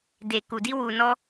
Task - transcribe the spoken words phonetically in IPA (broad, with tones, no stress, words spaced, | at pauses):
de˨ ku˨di˧wu˨nɔ˧